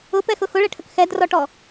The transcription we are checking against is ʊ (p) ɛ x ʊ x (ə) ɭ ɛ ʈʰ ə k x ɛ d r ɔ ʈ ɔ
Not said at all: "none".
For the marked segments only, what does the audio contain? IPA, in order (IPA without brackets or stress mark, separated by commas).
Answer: p, ʊ